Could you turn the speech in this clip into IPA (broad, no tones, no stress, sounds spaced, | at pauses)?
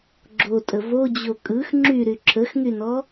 ɡ͡ǁ o tʼ ə v o d͡ʑ o kʼ ɯ x ŋ͡ǁ y ɾ y ǁʰ ə x ŋ y n ɔ